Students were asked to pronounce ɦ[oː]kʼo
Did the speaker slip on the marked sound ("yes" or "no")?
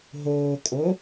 no